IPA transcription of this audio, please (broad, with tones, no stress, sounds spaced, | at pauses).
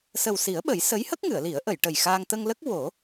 s ə˨˩ w s i˨˩˦ ə̯ ɓ ə˨˩˦ j s ə˧˥ j h ə˦˥ k̚ ŋ ɨ˨˩˨ ə̯ l i˨˩˦ ə̯ ʔ ə˨˩˨ j ʈ ə˨˩ j x aː˧ ŋ t̪ ə˧ ŋ l ə˦˥ k̚ w o˨˩˦